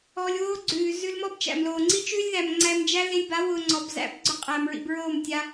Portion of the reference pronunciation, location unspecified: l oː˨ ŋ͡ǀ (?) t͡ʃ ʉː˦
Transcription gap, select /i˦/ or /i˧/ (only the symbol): i˦